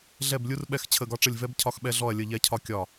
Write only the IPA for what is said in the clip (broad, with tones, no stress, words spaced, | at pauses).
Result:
ɮɛ˦˨blʲu˦rɓɛ˦˨x t͡ɕʰə˦˨ɡɒ˦ʈ͡ʂə˦˨lʲ vɛ˦b cʰɒ˦xɓɛ˦ ɮɔ˦˨ɐ̯lʲə˦˨ʎɛ˦cʰɒ˦ kʲɒ˦˨